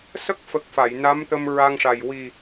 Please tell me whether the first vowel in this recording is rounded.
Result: no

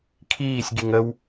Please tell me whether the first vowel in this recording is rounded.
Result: no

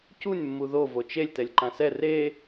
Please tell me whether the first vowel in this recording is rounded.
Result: yes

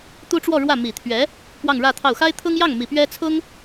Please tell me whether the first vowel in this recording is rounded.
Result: yes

